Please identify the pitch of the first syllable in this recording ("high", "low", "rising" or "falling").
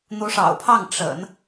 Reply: rising